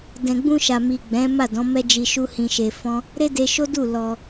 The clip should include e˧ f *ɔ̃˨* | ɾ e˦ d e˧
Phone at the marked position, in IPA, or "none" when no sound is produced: ɔ̃˦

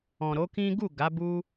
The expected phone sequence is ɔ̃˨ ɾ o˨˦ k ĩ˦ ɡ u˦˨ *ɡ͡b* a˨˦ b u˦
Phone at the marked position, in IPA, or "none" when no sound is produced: ɡ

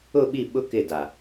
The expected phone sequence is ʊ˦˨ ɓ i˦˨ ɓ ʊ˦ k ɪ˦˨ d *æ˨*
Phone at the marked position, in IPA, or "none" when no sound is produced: a˨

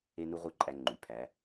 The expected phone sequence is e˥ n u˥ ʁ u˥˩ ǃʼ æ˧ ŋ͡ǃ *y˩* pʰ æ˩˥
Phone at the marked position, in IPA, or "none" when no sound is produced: y˩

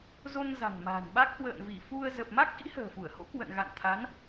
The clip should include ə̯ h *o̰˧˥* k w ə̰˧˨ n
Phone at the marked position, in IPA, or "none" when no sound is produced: o̰˧˥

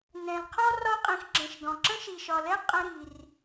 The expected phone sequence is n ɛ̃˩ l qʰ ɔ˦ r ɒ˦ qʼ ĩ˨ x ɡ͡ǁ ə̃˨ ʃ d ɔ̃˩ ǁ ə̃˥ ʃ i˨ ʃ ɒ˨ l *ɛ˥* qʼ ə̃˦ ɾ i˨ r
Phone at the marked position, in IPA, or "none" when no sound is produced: ɛ˥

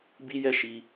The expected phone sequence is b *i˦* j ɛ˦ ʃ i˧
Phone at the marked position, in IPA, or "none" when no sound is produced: i˦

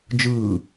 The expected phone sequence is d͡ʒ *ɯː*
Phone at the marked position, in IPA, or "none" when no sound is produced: ɯː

